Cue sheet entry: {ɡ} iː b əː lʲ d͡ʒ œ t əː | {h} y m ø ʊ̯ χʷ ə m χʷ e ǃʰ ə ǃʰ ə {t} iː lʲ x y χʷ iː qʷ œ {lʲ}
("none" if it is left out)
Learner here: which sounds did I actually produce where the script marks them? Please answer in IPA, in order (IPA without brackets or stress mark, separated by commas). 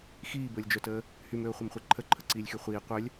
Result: x, h, ǀ, lʲ